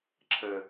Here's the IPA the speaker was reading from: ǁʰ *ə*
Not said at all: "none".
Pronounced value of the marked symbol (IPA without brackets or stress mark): ə